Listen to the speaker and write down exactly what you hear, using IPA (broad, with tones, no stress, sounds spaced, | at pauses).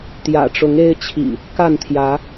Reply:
t̪ j ä̰˨˩ ʈ͡ʂ ʊ˨˦ ŋ e˦ ɪ̯ t͡ɕʰ ḭ˨˩ | k a˥˨ n t̪ʰ j ä˨˦